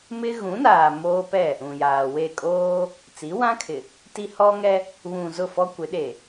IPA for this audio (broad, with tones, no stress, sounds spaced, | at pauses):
m ɪ˦ ɣ ũ˨˦ n aː˨ m oː˦ p ɛ˦˨ | ũ˨ j aː˨ w e˦˨ kʼ oː˦ | t͡s i˨˦ w ã˦ kʰ ɪ˨ | t i˦ h ɔ˦ ŋ ɛ˦ | β ũ˨ z ʊ˦˨ f ɔ˦ kʷ ɪ˨˦ ɗ e˨